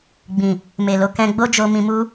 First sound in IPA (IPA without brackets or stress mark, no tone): ɡ͡b